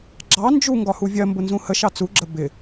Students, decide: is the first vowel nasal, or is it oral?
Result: oral